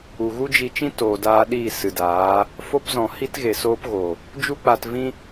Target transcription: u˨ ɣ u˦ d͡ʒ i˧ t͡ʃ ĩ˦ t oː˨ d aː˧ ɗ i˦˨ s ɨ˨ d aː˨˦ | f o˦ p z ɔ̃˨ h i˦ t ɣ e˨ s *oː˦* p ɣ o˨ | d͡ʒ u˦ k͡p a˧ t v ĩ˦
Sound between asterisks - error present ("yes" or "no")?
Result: no